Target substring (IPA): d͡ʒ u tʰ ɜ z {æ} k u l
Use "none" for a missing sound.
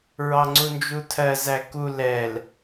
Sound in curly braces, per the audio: æ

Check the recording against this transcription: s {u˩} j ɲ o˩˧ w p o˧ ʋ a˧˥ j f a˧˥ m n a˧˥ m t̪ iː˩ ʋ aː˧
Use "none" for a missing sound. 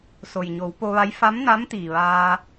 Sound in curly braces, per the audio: o˩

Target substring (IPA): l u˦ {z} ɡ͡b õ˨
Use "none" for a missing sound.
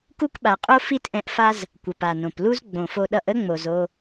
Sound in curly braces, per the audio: z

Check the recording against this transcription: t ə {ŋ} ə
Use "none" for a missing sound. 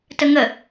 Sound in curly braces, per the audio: ŋ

